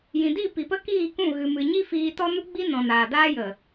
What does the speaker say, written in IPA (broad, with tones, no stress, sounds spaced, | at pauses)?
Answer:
j ĩ˨ d i˦˨ p i˨ p ə˦ k iː˦˨ k ũ˦˨ ɣ ɨ˨ m ɨ˨ ɲ i˦ f iː˧ t ɔ˦ n u˦ ɡ͡b i˦ n ɔ̃˨ n aː˨ d aː˦ j ə˨